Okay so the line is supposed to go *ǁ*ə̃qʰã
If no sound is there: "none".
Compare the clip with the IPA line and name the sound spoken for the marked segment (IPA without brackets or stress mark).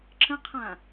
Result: ǁ